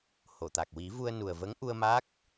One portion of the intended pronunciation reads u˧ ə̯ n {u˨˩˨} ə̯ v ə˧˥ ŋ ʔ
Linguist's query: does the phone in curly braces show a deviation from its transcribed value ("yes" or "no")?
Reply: yes